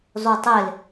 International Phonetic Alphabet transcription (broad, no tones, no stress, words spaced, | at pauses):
zˤutˤel